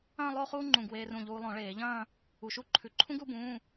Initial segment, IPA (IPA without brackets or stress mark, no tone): ɐ̃ː